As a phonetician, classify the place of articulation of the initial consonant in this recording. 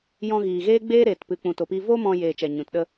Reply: palatal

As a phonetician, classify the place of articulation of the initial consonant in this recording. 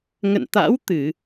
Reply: velar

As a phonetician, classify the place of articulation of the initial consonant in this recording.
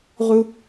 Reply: uvular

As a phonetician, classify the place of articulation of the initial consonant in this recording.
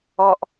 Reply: glottal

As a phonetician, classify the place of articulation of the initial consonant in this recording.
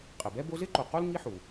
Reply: uvular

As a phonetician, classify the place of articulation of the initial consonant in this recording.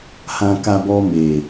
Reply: glottal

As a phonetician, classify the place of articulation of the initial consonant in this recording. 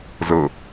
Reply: alveolar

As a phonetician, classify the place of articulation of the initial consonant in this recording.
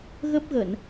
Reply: velar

